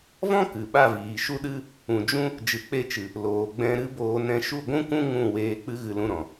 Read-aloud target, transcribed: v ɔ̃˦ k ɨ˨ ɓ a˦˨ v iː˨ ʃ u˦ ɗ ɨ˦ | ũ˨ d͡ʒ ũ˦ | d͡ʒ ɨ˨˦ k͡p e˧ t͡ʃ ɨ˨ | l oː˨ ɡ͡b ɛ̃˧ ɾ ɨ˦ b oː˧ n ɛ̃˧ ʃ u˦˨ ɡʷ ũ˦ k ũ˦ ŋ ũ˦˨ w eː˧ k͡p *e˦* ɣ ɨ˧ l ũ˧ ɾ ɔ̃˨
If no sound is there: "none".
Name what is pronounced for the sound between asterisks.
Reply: ɨ˦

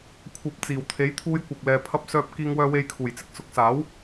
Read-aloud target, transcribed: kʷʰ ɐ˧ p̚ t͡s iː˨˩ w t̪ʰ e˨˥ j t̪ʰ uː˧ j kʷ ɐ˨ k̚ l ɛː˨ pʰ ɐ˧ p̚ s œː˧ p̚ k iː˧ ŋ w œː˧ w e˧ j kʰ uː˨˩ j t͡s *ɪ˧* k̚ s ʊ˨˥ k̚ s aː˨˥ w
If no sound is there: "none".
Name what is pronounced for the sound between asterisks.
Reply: ɪ˧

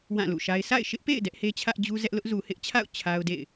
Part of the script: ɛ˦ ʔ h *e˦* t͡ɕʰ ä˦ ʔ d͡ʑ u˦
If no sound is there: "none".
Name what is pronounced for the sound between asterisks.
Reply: e˦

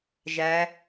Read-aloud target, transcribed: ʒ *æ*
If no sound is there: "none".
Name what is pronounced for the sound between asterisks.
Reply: æ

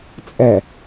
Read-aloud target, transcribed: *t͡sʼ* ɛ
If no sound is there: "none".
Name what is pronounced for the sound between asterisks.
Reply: t͡sʼ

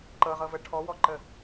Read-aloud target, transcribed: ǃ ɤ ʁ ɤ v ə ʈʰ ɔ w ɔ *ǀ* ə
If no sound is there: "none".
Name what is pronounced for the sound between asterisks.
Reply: ǃ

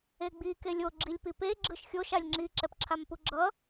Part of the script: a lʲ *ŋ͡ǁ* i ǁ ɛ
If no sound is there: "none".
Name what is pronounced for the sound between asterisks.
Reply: ŋ͡ǁ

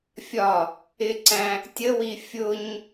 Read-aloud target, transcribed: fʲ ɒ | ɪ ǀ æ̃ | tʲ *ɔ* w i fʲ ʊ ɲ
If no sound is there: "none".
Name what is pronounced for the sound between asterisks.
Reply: ə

